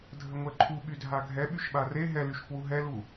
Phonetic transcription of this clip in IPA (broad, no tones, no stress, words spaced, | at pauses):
dʱəŋʷɛǃʰu ɓydʱaɡʱɛ ɓyʃɓare ɦɛlyʃkwu ɦɛlu